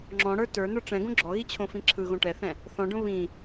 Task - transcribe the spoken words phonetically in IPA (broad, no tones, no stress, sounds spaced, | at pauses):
ŋ͡ǁ ɔ̃ ɽ ə˞ t ə˞ n ə˞ ʈ͡ʂ ɛ̃ ɡ õ ɡ͡ǁ ɔ ɣ i t͡ɕʰ õ f ĩ ǁʰ ɯ ɣ õ ʈ ɛ θ ɛ̃ | θ ɔ̃ ɖ õ β ĩ